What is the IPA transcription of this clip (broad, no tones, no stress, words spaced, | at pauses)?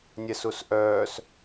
nʲɛsusʔœːs